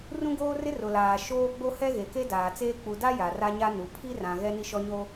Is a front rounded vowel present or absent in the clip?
absent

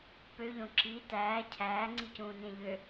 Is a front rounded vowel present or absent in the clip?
present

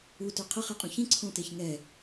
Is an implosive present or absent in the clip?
absent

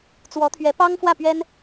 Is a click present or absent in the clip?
absent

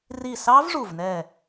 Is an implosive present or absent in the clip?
absent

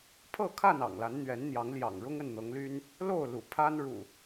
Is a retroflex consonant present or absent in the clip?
present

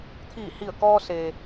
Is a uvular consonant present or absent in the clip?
absent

